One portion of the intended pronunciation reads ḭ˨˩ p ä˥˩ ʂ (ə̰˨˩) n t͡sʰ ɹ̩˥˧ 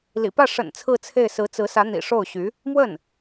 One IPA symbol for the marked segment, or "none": ə̰˨˩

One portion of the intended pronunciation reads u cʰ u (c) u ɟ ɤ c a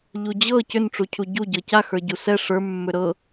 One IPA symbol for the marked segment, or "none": ɟ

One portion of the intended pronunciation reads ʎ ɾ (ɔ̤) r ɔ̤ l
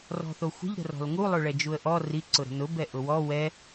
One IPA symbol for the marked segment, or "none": ə̤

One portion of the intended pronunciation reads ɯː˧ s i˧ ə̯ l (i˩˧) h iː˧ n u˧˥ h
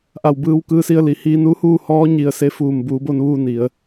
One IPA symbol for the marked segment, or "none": i˩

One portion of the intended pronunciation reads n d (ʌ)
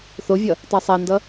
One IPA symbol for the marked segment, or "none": ʌ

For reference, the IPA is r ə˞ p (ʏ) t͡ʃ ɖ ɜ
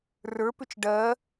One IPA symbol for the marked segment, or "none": ʏ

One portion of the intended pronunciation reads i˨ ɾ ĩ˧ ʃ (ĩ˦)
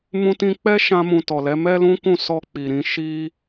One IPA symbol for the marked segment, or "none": i˦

